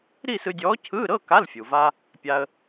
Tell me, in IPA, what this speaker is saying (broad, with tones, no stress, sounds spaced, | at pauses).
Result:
ɾ i˥˧ s ɯ˧ dʲ ɔː˧˥ cʰ ɯː˧˥˧ ɾ ɤ˧˥˧ k a˧˥˧ l fʲ u˩ v a˧ | pʲ a˧ ə̯